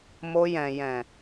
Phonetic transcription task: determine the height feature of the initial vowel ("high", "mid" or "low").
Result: mid